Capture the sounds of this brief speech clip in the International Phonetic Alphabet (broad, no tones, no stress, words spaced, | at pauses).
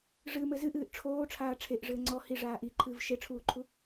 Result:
ʐɨmɘ zɨʔɨːʔ ʈ͡ʂʰoːʈ͡ʂʰaː ʈ͡ʂʰeʔʐɘː ŋ͡ǀɔ hiʐaː ʔiǃʰɨːv ʃeʈ͡ʂʰuːǃʰu